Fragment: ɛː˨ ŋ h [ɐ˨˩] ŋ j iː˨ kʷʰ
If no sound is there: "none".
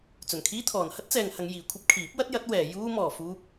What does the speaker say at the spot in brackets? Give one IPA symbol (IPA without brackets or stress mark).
ɐ˧